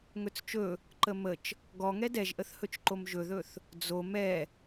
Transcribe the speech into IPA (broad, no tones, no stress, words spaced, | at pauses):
ŋɵt͡st͡ʃɵ | ǃəmət͡ʃ | ɡɔŋɛ dɛʒʔəθhɵt͡ʃǃom ʒɵðɵθ | d͡zo mɛ